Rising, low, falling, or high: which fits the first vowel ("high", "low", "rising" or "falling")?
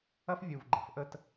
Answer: high